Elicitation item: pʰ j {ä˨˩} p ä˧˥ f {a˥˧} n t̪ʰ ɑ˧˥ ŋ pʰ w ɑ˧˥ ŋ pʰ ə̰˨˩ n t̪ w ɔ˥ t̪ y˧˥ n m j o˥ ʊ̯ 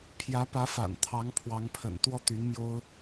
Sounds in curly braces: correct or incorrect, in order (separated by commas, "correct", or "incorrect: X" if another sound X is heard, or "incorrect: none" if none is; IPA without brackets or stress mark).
incorrect: ä˧˥, incorrect: a̰˨˩